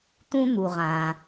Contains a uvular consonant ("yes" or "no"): yes